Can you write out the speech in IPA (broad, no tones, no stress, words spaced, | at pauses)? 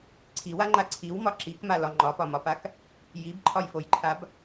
ǀʰiwaŋ͡ǃa ǀʰiwmɒ ǁikmalɒ ŋ͡ǃɒpɒmɒpak | jibǃʰɒjfojǃʰab